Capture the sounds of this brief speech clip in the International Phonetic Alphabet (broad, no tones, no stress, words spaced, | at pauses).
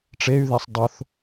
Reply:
ʈ͡ʂey̯ðesˤ dˤoθ